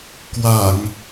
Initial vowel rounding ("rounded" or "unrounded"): unrounded